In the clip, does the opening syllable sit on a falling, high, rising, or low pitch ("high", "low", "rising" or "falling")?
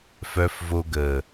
low